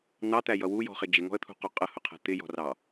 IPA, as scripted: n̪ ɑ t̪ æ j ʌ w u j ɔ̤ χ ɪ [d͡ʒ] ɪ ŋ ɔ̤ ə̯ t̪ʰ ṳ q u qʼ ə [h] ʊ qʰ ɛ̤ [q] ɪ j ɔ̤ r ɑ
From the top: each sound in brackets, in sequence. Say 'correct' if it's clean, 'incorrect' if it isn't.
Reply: correct, correct, incorrect: t̪

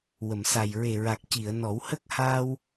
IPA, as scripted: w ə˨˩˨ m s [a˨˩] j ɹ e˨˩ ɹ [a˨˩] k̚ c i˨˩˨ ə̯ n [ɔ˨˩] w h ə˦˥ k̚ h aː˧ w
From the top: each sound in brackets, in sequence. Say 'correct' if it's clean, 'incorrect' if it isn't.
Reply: correct, correct, incorrect: ɔ˨˩˦

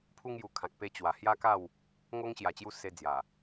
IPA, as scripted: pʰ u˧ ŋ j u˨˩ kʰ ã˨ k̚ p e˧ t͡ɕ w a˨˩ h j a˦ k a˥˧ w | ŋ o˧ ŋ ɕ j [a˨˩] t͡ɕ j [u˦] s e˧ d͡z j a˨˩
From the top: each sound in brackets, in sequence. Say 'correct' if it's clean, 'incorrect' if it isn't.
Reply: correct, incorrect: u˧

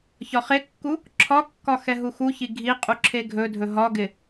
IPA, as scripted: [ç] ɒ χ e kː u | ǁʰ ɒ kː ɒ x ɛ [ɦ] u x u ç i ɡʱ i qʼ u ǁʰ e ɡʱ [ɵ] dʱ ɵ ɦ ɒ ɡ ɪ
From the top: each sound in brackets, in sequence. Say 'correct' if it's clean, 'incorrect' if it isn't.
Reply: correct, correct, correct

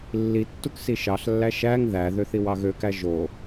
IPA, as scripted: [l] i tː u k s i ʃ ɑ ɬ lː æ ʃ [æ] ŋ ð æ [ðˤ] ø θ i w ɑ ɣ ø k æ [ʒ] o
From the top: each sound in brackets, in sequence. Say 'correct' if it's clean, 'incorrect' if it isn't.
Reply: incorrect: lː, correct, incorrect: ð, correct

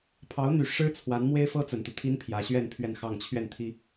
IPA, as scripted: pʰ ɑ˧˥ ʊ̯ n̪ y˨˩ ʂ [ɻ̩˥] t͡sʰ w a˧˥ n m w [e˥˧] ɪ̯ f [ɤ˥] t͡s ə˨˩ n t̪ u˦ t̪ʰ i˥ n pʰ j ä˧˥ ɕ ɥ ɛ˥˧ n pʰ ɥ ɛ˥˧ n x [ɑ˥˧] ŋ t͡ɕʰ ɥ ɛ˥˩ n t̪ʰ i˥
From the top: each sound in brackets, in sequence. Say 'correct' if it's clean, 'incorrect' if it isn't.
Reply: correct, incorrect: e˥, correct, correct

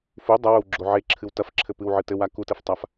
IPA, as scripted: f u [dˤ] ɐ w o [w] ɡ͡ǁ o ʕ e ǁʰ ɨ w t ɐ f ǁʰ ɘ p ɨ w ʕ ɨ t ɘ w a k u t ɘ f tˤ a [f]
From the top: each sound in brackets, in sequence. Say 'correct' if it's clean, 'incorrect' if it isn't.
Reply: correct, correct, correct

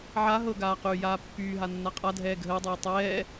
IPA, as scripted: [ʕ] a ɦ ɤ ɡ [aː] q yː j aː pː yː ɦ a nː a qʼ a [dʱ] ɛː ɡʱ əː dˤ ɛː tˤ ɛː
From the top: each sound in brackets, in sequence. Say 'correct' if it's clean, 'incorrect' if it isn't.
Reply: correct, correct, correct

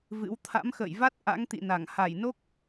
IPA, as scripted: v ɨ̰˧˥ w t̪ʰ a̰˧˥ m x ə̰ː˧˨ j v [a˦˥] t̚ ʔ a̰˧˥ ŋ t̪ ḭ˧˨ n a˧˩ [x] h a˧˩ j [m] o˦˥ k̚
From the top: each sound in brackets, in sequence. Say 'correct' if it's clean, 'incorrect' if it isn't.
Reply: correct, incorrect: ŋ, incorrect: n

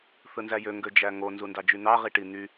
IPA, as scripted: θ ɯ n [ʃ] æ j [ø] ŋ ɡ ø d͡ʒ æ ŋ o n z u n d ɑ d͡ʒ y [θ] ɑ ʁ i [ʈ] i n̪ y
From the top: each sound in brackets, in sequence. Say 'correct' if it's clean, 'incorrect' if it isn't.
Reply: incorrect: z, correct, incorrect: n̪, correct

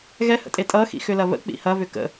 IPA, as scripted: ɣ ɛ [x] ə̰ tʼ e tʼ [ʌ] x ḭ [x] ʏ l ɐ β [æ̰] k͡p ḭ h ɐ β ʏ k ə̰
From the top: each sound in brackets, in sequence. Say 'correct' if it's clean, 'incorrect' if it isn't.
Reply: incorrect: h, correct, correct, incorrect: ə̰

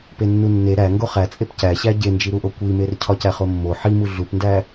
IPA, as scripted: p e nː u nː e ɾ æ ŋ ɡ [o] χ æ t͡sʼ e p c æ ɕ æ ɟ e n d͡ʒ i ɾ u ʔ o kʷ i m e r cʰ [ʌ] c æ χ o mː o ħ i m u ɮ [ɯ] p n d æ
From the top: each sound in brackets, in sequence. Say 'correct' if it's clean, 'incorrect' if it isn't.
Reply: correct, incorrect: ɒ, incorrect: u

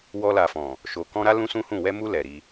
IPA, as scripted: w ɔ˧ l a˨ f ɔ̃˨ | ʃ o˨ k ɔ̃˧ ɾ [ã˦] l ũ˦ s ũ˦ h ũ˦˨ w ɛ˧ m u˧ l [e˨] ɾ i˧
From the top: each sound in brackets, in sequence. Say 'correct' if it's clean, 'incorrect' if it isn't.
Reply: incorrect: a˦, incorrect: ɛ˨

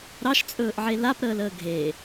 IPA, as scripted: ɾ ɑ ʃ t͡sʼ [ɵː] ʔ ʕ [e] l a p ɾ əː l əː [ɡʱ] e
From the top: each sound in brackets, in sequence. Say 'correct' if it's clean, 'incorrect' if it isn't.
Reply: correct, correct, correct

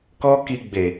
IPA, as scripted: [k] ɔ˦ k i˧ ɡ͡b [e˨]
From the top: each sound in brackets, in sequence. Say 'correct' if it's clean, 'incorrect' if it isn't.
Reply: correct, correct

